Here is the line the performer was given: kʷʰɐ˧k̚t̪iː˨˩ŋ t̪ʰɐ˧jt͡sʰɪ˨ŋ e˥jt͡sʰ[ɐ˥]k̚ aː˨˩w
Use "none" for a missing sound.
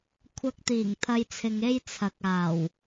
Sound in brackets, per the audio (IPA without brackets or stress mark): ɐ˨